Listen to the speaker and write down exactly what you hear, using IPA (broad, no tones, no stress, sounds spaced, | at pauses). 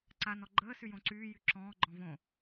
ǀ a n ɔ ɡ͡ǃ əː s y j õ ǀ yː j y ǁ ɔ̃ː ɡ͡ǃ ɔ̃ v õ